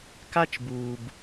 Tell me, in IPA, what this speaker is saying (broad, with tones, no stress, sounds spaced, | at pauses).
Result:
k a˦ t͡ʃ b uː˨ b